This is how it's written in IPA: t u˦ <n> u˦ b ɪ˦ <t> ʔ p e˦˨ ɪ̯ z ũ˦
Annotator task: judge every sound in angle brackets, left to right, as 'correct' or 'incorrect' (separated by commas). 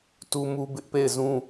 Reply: incorrect, incorrect